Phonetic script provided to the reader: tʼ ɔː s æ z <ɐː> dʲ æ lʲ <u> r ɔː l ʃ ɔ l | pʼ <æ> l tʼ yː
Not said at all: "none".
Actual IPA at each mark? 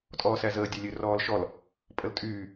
əː, ø, ə

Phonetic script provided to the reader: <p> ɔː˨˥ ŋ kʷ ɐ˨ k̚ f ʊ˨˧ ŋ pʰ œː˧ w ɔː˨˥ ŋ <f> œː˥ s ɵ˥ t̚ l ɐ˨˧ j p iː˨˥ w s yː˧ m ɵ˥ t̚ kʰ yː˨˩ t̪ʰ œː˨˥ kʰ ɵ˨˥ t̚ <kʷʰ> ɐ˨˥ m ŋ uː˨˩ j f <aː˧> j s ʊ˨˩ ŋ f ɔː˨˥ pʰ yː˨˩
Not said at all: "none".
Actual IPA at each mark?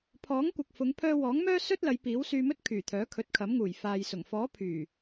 pʰ, m, kʰ, aː˨

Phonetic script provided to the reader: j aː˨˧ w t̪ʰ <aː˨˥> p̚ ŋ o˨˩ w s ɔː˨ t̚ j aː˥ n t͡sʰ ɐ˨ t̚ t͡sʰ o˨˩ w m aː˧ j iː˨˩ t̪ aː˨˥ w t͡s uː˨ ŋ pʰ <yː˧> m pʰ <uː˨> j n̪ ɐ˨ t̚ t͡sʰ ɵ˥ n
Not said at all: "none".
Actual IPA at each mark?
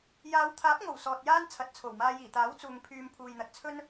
aː˨˥, yː˧, uː˨

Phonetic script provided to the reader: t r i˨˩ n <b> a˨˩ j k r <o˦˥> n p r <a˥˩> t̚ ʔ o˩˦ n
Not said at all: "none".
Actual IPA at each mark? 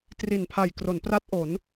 pʰ, o˩˦, a˦˥

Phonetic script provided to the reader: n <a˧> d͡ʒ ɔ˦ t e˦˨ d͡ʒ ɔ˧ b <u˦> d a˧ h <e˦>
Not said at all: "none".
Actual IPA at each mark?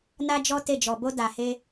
a˦, o˦, e˦

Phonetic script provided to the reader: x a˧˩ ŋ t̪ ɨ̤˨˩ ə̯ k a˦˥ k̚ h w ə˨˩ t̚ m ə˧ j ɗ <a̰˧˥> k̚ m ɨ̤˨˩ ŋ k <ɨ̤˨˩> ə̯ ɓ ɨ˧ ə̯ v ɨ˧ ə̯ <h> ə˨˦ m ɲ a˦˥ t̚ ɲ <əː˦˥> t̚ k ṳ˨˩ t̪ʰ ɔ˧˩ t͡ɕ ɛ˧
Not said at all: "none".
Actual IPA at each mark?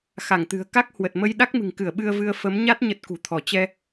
a˦˥, ɨ˧˩, f, ə˦˥

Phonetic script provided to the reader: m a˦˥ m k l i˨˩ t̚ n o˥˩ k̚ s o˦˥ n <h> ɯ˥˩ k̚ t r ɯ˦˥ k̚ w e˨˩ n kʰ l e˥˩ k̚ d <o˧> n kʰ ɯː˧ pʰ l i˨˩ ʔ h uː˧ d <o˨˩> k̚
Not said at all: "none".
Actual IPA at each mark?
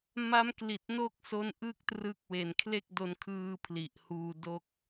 ʔ, o˧, o˥˩

